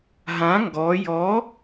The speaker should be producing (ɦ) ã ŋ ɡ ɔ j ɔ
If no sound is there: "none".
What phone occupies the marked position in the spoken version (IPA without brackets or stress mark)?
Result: ɦ